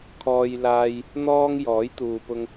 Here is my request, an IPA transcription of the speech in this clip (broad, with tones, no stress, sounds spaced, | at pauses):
kʰ ɔː˧ j l aː˧ j | n̪ ɔː˥ ŋ j ɔː˨˥ j t̪ uː˨ p ʊ˧ ŋ